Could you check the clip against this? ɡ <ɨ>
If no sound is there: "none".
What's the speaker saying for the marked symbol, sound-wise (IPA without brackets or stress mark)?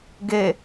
e